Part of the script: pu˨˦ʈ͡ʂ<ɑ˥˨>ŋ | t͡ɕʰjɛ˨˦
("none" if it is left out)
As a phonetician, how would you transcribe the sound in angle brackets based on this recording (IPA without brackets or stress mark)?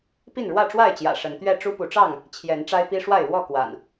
ɑ˥˨